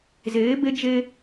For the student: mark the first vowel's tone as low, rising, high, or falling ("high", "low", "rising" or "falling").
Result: rising